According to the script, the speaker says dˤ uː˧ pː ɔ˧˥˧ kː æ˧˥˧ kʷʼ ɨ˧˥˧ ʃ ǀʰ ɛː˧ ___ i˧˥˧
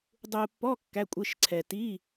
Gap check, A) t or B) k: A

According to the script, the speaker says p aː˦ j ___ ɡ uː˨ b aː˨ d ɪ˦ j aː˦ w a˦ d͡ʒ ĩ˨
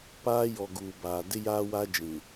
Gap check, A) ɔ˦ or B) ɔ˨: B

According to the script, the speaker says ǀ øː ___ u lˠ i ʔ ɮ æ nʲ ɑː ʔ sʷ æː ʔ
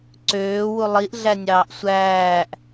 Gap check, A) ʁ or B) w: B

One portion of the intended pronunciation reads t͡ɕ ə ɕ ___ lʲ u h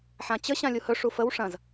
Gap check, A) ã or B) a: A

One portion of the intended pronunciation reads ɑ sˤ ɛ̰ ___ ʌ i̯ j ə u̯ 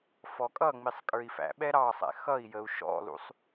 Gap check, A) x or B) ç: A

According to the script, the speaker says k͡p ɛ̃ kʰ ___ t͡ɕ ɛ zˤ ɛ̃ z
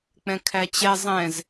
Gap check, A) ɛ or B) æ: B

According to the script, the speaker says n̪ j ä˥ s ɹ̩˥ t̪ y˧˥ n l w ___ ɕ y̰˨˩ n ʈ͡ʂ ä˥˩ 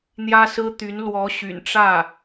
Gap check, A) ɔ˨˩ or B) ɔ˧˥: B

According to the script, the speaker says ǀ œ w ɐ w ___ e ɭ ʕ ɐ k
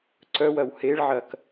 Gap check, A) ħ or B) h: B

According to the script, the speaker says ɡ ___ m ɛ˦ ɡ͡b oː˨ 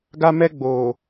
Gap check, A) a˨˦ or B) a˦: B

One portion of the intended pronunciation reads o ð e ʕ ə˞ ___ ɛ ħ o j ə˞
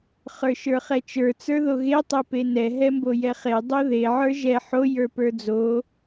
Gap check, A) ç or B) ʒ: B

